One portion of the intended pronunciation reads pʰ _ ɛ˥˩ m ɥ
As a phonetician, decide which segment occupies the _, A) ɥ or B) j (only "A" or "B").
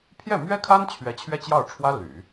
B